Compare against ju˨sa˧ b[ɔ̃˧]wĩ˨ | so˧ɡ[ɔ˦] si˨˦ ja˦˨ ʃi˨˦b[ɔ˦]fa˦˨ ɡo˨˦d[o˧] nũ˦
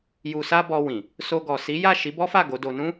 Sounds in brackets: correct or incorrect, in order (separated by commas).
incorrect, incorrect, correct, correct